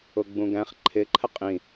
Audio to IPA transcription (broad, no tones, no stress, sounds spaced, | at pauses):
ʊ ɡ͡b ũ ɡ æ̃ χ ǃʰ ɪ ǃʰ ə qʼ ĩ